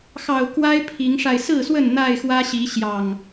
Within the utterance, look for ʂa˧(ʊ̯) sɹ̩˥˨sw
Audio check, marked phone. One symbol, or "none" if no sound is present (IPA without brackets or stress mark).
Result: ɪ̯